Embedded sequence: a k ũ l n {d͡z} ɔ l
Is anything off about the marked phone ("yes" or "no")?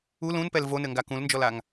yes